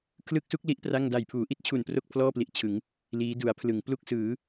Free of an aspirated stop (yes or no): no